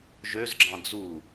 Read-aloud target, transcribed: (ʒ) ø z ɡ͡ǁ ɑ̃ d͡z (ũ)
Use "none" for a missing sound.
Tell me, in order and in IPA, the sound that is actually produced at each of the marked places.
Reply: ʒ, u

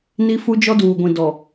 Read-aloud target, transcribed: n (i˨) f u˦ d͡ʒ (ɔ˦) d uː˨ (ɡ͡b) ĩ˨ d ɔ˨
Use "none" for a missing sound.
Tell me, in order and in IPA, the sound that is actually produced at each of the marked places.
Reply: i˦, ɔ˦, ɡʷ

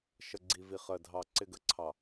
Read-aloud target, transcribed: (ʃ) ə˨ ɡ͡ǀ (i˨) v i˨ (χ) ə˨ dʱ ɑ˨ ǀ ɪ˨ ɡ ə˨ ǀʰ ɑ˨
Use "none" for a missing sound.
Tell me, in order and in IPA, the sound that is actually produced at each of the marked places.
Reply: ʃ, i˨, χ

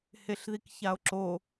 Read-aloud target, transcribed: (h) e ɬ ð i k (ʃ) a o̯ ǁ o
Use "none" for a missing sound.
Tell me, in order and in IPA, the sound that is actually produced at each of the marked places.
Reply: h, ç

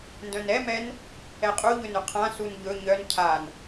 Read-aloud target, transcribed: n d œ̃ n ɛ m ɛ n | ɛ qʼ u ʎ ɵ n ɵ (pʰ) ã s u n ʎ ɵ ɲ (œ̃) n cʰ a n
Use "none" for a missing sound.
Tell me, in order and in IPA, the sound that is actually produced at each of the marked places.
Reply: qʰ, œ

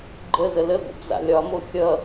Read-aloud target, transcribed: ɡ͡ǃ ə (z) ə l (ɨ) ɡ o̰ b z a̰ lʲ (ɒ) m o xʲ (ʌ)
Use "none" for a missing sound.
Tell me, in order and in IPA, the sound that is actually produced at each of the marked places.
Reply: z, ə, ɒ, ʌ

